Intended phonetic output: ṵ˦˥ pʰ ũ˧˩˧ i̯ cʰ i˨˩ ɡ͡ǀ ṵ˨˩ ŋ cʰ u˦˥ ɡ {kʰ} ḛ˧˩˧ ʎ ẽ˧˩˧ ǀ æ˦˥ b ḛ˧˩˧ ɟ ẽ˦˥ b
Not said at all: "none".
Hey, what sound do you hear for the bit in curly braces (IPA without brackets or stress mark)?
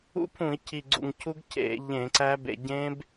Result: cʰ